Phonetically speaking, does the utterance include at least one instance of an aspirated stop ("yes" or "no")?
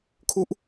yes